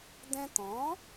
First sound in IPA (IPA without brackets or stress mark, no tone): d̪